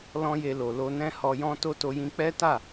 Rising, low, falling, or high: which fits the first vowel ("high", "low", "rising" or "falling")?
high